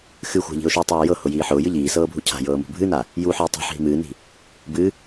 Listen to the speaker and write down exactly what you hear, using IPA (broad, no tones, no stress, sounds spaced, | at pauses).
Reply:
x ɨ xʷ a̤ ʎ i̤ ʊ̯ ʃ u tˤ aː j ɤ h ʊ j iː ħ ʊː j ɨ ʎ iː s ɤː bʱ u cʰ a̤ j ɤː m ṳ bʱ ɨ n a | j u ħ ɨː tˤ a̤ ħ ɦ i̤ m ɨː n i̤ | b ɨ